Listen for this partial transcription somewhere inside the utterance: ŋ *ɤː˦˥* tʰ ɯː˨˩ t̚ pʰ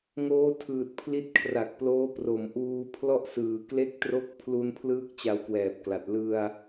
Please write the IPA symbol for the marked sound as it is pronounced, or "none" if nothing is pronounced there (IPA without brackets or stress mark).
oː˦˥